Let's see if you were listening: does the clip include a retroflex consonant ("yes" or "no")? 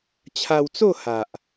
no